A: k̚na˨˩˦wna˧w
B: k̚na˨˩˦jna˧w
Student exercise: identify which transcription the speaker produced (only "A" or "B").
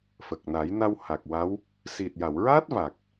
B